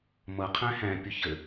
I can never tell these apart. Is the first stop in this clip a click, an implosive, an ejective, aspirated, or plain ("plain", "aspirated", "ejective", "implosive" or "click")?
aspirated